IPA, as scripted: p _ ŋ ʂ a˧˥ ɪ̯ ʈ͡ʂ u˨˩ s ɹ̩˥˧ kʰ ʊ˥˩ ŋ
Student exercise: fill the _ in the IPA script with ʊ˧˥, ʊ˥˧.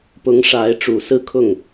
ʊ˧˥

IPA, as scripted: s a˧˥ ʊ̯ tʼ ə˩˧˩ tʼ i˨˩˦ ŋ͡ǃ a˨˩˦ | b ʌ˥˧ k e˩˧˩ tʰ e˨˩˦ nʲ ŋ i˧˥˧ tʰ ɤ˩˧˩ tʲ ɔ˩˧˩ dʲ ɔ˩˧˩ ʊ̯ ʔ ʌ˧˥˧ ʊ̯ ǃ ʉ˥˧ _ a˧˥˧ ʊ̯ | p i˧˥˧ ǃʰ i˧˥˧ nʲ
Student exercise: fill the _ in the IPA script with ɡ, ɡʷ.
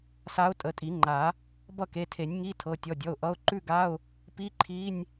ɡ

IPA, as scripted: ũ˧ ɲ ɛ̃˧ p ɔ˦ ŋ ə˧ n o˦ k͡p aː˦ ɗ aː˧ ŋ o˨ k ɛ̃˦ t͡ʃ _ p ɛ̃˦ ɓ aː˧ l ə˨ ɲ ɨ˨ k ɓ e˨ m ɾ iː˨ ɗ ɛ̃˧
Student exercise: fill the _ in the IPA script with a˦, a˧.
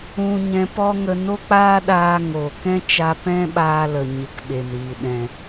a˧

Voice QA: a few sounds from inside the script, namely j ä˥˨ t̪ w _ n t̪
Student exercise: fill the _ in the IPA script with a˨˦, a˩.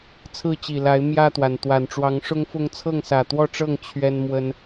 a˩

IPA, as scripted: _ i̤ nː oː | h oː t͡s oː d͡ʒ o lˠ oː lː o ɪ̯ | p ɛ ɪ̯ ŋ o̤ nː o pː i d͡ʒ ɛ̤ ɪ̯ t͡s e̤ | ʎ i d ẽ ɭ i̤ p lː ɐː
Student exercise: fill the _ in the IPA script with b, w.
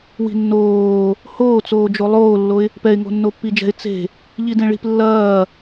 w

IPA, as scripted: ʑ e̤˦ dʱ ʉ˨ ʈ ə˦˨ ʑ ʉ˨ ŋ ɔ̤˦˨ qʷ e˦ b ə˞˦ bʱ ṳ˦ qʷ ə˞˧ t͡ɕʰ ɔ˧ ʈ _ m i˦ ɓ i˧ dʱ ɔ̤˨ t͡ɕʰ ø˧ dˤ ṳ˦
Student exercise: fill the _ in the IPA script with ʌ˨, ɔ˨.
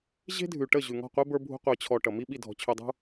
ʌ˨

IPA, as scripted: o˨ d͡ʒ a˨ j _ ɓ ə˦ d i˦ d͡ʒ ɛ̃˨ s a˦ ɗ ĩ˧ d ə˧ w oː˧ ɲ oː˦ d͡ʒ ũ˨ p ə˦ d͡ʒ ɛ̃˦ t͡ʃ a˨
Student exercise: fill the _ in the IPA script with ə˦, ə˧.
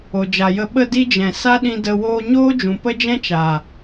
ə˧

